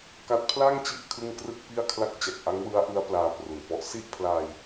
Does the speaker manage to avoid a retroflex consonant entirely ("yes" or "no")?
yes